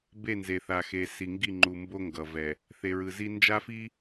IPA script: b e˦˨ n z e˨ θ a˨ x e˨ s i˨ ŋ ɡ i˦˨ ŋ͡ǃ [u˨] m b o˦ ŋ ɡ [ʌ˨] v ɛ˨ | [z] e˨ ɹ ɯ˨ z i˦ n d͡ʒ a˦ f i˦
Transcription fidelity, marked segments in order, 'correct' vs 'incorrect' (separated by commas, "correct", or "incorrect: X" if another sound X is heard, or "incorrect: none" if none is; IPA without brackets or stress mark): correct, correct, incorrect: θ